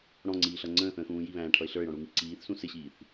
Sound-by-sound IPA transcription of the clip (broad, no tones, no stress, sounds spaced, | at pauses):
ɽ ɔ̃ ŋ͡ǀ iː ɬ ʌ ŋ͡ǀ ə̃ː θ ə̃ː x ũː j i β æ̃ː ʈʰ ʌ ɪ̯ ɬ ə˞ ɪ̯ ɽ ɔ̃ ɽ u ŋ i ǀ iː θ s ũ s ɪ ɕ iː θ